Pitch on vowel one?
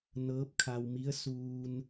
rising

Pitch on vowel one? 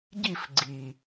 falling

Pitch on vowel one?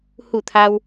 falling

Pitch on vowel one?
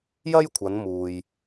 high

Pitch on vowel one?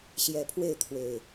rising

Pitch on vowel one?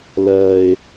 low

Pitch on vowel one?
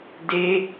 high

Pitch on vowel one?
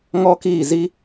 high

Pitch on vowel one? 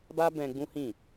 high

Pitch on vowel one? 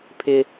high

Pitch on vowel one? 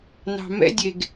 low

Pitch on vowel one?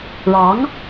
rising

